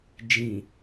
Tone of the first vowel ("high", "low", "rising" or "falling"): low